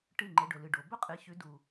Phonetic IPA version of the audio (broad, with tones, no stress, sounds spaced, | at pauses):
ʈ ɨ˦˨ ŋ͡ǃ e˨˦ ɖ ɵ˨ l ɨ˨ ɖ o˨ b ɵ˥ qʼ ɨ˨˦ ç ʉ˨˦ d u˨